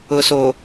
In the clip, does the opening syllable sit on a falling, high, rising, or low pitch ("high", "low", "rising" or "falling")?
low